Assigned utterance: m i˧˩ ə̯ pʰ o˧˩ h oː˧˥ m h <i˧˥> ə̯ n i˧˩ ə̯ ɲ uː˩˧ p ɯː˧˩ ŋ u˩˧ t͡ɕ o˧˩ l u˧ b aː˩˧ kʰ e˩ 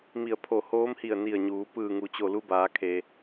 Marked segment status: incorrect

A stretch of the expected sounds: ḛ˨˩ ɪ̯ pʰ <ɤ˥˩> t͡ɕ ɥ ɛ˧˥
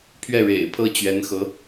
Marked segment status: correct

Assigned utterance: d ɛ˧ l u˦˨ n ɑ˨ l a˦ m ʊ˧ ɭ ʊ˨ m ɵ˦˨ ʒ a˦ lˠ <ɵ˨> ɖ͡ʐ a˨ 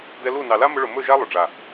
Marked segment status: incorrect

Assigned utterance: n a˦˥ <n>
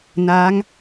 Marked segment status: incorrect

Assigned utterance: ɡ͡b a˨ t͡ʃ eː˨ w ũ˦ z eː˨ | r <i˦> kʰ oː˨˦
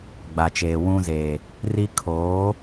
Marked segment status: correct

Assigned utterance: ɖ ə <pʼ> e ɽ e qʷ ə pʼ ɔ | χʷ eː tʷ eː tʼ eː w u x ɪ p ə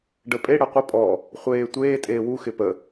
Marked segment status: correct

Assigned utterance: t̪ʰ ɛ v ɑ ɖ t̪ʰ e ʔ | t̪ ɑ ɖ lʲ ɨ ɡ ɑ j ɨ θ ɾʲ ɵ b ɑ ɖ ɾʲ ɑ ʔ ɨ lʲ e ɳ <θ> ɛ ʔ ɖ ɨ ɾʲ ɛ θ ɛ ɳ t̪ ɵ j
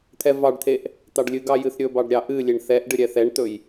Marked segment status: correct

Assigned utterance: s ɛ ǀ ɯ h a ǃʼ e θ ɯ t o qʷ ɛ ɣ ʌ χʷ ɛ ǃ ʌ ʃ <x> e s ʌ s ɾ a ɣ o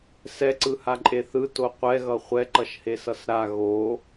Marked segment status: incorrect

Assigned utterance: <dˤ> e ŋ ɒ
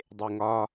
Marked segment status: correct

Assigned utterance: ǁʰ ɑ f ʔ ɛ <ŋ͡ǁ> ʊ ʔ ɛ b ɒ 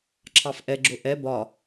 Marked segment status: incorrect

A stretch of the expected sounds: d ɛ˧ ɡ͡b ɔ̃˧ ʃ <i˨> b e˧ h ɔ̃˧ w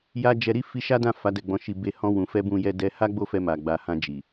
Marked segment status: incorrect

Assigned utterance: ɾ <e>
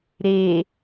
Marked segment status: correct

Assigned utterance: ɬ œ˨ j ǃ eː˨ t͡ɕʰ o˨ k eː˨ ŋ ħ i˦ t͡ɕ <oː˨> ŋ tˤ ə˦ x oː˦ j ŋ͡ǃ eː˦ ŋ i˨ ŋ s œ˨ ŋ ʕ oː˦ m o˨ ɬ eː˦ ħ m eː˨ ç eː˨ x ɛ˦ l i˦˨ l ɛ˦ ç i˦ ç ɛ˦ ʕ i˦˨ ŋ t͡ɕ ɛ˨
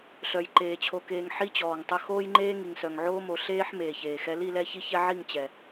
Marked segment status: incorrect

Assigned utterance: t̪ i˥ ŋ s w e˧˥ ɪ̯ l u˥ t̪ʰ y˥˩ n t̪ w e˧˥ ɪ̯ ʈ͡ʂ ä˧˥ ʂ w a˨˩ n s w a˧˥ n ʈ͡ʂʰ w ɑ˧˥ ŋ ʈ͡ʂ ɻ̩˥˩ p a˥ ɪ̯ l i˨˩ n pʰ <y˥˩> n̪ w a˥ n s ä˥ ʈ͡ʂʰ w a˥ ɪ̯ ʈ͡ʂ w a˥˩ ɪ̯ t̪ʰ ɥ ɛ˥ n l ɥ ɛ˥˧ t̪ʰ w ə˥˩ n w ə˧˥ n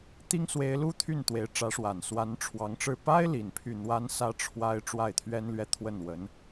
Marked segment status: correct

